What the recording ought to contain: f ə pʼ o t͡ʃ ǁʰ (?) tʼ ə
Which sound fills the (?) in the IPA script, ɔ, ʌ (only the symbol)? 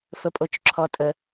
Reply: ɔ